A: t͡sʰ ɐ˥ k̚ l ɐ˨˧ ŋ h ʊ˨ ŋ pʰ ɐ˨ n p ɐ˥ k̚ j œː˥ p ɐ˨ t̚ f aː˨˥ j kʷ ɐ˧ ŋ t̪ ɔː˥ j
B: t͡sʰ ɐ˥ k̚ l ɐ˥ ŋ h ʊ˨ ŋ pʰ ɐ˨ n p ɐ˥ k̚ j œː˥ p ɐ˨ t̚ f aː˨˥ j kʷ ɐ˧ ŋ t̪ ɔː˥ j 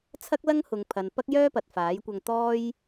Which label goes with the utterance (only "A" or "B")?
B